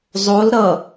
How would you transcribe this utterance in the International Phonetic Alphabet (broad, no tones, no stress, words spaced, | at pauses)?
zˤol ɾʌ